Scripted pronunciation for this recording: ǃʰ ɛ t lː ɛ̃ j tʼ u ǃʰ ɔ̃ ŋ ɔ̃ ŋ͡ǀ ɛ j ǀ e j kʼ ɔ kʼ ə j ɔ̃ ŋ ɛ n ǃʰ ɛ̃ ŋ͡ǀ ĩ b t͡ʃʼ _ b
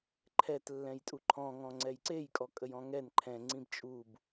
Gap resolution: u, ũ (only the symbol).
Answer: u